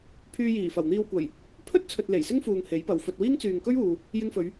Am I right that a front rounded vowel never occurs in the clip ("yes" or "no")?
no